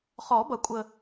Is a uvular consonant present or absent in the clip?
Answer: present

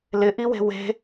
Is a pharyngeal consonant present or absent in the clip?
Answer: absent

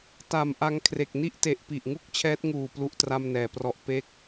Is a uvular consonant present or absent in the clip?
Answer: absent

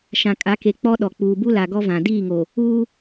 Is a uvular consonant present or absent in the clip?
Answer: absent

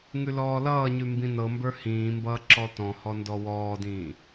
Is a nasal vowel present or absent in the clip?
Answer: present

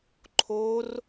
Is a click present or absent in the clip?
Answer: present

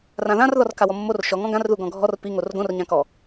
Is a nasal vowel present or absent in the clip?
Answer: present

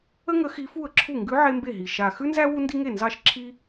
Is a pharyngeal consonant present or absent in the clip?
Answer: present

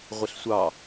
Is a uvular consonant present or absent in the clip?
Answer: present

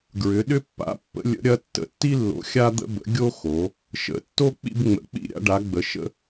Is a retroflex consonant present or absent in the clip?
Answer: present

